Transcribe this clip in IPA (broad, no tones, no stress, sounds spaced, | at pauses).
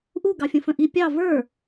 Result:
ʔ u ɡ ɑ fʲ ə̃ f ə̃ ʔ i pʲ ɑ v ə˞